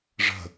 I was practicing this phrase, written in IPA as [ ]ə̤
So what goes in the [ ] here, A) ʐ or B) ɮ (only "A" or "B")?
A